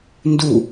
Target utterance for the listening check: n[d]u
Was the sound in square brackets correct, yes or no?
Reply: yes